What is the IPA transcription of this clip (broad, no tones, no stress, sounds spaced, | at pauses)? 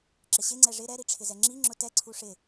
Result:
ǁ ɪ ɕ ɪ ŋ͡ǀ ɛ ʐ ɪ ɾ ɛ ɾ i ʈ͡ʂʰ ɪ z ɛ ŋ͡ǁ i ŋ͡ǁ ʊ t ɛ ǀʰ u ʂ ɪ